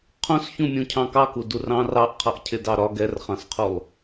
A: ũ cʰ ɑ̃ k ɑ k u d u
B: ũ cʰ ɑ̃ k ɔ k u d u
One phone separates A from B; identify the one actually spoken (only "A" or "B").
A